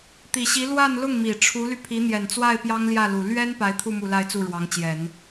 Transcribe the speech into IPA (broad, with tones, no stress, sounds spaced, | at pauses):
t̪ i˨˩ ɕ i˧˥ l w a˥˧ n l ʊ˥˩ ŋ m i˨˩ ʈ͡ʂʰ u˧˥ l y˧ pʰ i˧˥ n̪ j ɛ˨˩ n t͡s w a˥˩ ɪ̯ p j ɑ˥ ŋ l j ä˥˩ l u˨˩ l ɥ ɛ˥ n p a˧˥ ɪ̯ t̪ʰ u˥˧ m u˥˧ l a˥˧ ɪ̯ t͡s u˥˩ ɻ w ɑ˧˥ ŋ t͡ɕ j ɛ˨˩˦ n